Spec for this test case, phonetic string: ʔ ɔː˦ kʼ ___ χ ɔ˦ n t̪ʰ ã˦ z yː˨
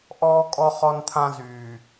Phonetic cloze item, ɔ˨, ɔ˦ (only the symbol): ɔ˦